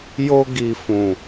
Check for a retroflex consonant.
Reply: absent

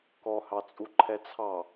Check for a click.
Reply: present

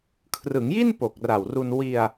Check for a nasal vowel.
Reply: absent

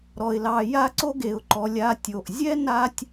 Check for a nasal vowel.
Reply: absent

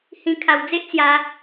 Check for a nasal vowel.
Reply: present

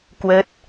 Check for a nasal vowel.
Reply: absent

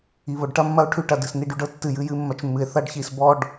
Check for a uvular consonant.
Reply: absent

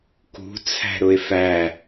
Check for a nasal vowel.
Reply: absent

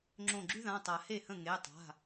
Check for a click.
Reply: present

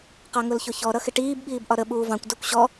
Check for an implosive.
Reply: present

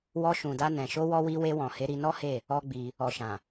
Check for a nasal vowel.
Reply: present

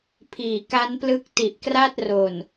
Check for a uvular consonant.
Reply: absent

